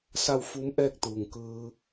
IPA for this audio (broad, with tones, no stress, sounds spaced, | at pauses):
s a˥˨ w f uː˧˥ m ʔ ɛː˥˨ k̚ t̪ uː˩ ŋ k ɯː˧